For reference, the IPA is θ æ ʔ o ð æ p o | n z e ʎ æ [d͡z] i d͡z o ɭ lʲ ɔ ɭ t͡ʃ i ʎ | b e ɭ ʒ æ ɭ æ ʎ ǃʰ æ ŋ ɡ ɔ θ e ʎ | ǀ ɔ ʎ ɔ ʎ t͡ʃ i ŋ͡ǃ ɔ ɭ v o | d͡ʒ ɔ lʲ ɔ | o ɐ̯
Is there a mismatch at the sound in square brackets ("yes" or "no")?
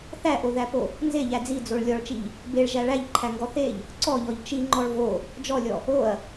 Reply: no